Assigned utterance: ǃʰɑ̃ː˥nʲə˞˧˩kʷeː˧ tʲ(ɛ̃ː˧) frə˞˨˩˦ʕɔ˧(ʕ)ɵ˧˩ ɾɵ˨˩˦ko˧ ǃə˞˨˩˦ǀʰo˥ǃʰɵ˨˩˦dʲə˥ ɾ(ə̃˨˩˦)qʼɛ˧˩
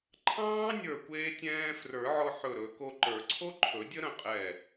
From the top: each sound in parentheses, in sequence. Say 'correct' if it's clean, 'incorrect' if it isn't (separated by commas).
correct, incorrect, incorrect